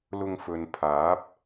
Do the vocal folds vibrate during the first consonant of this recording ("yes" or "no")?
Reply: yes